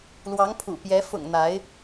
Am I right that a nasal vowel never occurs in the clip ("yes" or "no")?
yes